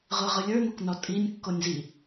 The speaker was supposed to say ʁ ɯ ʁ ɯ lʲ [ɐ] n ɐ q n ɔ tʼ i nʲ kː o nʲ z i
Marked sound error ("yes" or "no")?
yes